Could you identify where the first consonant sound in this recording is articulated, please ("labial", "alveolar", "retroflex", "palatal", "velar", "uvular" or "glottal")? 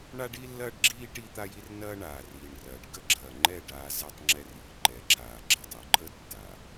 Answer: retroflex